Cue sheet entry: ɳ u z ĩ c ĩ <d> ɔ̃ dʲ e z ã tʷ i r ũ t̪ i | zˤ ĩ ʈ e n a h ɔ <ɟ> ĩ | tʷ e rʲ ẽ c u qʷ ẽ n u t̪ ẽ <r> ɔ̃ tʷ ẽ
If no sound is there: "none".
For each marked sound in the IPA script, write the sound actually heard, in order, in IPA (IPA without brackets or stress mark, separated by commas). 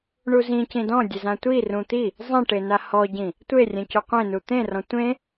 d, ɟ, r